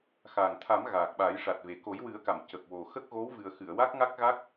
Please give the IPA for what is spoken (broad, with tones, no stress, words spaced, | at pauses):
xa˨˩ŋt̪ʰa˨˩˦m ɣaː˨˩k̚ɓa˨˩˦jʂa˨˩t̚ve˨˩ ko˨˩˦jwɨ˨˩˦ə̯ka˨˩˨m cə˨˩k̚wo˨˩ xə˦˥k̚ɣo˧˥wvɨ˨˩ə̯xɨ˨˩˨ə̯ wa˦˥k̚ŋa˦˥k̚ɣa˦˥k̚